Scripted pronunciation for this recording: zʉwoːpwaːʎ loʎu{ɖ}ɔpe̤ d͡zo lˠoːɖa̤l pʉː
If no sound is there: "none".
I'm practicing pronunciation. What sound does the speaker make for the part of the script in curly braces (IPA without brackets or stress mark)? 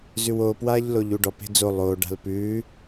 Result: ɖ